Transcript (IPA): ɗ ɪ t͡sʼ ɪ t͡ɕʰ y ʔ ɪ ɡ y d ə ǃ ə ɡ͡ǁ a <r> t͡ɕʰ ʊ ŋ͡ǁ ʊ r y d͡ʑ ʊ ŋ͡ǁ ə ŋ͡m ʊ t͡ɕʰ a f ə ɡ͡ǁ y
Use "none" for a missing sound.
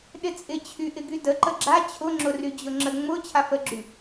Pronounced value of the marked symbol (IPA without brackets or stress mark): none